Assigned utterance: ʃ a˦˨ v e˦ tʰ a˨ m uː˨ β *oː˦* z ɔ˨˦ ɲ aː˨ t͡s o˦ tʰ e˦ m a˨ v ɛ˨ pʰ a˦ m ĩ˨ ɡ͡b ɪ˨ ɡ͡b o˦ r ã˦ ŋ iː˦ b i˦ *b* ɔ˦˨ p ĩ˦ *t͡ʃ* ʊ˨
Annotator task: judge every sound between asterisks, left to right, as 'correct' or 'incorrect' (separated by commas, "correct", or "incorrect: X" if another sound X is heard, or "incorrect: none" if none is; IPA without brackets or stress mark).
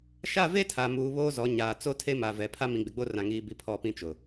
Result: correct, incorrect: pʰ, correct